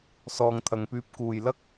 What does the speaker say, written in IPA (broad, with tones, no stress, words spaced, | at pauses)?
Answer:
sɔː˨ŋt̪ʰɐ˨ŋpyː˧p̚ kuː˨jlɐ˥k̚